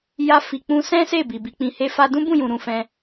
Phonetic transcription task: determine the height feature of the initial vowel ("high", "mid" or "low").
low